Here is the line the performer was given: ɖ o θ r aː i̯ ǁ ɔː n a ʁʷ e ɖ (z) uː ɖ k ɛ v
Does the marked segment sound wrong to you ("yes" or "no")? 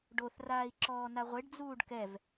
yes